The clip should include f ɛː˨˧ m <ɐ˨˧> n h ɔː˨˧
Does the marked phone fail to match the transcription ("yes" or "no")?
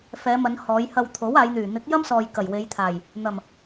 no